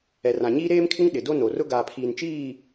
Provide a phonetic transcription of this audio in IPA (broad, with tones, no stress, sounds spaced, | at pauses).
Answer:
ɛ˨ r ã˨ ɲ iː˦ ɾ eː˦ m kʰ ɪ˦ ŋ ɗ ɪ˨ d o˦ n o˨ r ʊ˦ ɡ aː˨ pʰ iː˨ n t͡ʃ iː˦˨